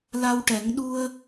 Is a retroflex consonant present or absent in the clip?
present